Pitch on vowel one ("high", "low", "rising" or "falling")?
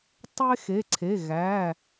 high